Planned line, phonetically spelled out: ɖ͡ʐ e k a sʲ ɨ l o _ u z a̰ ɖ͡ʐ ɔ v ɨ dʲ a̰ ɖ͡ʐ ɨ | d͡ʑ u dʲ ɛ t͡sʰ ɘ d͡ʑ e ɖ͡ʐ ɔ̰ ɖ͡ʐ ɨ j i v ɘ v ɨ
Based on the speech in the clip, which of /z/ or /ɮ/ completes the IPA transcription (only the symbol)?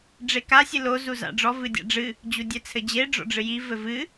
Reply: z